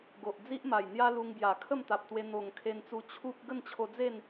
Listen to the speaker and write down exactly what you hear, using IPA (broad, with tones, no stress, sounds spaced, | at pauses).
ɡ o˨ ʔ d͡z i˦ ʔ m a˨˩ j n̪ j a˦ l u˧ ŋ b j a˨˩ kʰ ə˥˧ m t̪ a˨ p̚ t̪ w e˧ n̪ o˨˩ ŋ kʰ e˧ n t͡s u˧ t͡ɕʰ u˦ p̚ ɡ ə˥˧ n t͡ɕʰ o˧ d͡z e˥˧ n